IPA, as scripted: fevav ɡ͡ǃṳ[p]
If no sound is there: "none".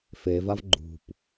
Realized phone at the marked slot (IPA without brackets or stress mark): p